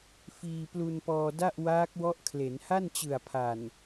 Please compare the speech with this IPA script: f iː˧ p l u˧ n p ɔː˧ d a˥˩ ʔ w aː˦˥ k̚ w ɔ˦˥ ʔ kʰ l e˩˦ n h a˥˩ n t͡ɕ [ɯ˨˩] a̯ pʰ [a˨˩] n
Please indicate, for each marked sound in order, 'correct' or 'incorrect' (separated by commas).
correct, correct